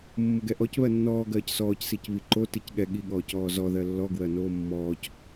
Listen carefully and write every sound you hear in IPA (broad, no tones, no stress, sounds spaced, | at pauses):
mː ʊ ɡ ɛ ʔ ɔ c β ɜ nː ɔː ɡ ɜː c s ɔː c s i c β i ǃ o t i c ɠ ɛ ɠ i ɠ ɔː c ɔː z ɔ ð ɜ lː ɔ ɡ w ɜ n oː mː ɔː c